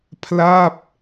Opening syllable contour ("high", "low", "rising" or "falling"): falling